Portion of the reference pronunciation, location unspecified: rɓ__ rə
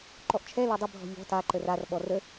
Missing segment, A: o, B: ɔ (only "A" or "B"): B